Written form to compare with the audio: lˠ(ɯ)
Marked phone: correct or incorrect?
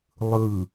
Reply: correct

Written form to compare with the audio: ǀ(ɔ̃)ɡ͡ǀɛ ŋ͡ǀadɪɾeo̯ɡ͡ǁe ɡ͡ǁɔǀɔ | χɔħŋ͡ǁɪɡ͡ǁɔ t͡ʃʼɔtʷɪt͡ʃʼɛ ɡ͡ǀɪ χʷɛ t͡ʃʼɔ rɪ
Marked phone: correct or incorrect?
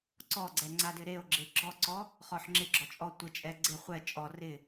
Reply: incorrect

